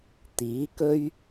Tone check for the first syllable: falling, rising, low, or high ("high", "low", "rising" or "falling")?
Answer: rising